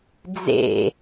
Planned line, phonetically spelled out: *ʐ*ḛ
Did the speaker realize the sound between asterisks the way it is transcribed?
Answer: no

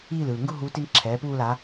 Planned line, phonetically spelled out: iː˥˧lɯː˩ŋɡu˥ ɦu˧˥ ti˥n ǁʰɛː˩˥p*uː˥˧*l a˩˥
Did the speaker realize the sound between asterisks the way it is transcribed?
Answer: yes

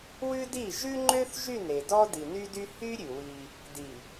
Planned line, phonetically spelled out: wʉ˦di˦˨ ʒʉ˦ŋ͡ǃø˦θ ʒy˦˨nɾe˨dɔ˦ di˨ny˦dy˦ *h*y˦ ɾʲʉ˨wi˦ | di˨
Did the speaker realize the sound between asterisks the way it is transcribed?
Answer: yes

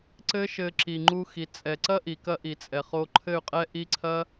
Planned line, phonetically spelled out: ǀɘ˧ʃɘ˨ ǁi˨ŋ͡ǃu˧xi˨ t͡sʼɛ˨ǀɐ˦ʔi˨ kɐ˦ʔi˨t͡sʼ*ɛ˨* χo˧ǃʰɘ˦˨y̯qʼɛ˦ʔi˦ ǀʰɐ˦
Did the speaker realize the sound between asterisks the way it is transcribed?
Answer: yes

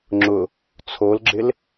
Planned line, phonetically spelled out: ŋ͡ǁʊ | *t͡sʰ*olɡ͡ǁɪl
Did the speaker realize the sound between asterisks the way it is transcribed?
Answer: yes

